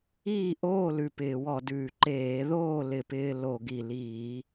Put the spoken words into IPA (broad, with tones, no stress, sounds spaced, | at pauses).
iː˥˨ ʔ oː˥˨ l ʉ˨˩ p ɪː˧˩˧ w ɔ˧˩˧ d ʉː˨˩ ǃ eː˧˩˧ ð oː˥˨ l ɪ˧˩˧ p ɪː˧ l o˧˩˧ ɡ i˨˩ l iː˧˩˧